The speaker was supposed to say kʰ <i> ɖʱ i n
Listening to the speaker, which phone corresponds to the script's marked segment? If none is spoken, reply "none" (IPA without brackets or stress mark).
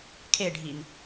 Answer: e